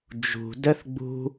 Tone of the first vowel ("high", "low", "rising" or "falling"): low